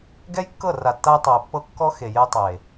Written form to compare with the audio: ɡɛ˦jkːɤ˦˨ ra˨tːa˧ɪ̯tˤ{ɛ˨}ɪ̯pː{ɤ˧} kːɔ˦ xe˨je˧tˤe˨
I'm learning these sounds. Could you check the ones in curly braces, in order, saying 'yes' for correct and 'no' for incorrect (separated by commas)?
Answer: yes, yes